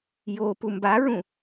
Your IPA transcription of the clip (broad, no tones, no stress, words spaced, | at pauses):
jo pumbaɹũ